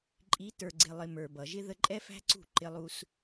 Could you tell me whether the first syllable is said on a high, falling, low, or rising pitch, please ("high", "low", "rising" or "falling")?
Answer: rising